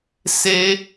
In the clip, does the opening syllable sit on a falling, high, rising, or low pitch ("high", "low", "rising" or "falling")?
high